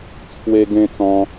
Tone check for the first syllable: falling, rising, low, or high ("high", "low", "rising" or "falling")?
high